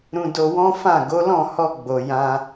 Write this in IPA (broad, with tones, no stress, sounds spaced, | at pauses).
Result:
ɾ ũ˧ d o˧ w ɔ̃˦ f ã˦˨ ɡ o˨˦ l ɔ̃˦˨ h ɔ˧ ɡ͡b o˨ j ã˧